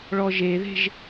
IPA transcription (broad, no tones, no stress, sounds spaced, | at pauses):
ɭ ɔ ʒ e ð e̤ ʒ